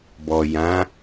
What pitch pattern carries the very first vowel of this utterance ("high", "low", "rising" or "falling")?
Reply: low